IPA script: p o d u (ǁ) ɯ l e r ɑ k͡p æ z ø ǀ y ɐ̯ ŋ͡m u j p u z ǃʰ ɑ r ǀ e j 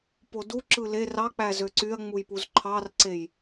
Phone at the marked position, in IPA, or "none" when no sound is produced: ǁ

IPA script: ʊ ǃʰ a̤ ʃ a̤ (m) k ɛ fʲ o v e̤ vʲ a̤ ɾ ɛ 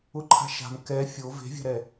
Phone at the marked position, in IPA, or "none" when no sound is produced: m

